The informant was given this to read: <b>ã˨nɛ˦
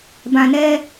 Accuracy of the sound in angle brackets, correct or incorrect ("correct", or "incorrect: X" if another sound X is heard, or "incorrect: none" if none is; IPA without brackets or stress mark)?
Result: correct